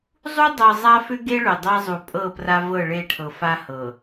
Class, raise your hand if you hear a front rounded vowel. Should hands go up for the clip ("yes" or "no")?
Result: yes